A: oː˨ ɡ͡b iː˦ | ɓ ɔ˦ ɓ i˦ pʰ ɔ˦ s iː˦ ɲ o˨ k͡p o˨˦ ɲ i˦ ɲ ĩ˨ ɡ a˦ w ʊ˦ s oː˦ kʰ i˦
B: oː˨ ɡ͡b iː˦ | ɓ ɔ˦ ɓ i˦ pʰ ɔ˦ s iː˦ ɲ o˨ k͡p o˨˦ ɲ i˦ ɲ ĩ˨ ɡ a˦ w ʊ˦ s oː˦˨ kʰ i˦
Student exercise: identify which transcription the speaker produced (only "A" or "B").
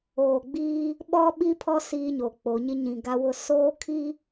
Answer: A